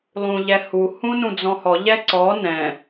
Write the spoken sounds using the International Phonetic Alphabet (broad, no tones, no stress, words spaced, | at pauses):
lˠũʎɛhu hũnũd͡zɔ̃hɔ ʎɛǀɔ nɛ̃